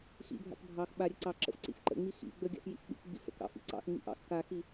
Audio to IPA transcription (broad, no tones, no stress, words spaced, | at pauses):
xḭbʱa̰k bʱɑx ɓaɾʲə ǀɑǁə̰f ǀḭfǃə̰ŋ͡mi xḭ ɡ͡bəɡʲa̰f jḭfɓḭkɡ͡bḭ fə̰kɑ̰ fḭǀɑ̰xŋ͡mḭ ʔɑ̰x kaxi